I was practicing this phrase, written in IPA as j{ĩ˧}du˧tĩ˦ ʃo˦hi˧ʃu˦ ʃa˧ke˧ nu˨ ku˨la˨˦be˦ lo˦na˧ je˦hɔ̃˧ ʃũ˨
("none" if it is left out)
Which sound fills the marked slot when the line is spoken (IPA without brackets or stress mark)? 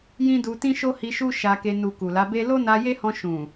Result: ĩ˦